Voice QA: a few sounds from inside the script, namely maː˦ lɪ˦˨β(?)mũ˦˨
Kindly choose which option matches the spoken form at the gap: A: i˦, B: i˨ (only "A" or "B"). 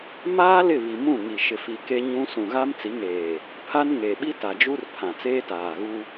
B